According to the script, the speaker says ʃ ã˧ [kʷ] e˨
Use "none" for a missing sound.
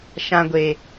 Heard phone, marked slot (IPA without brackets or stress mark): ɡʷ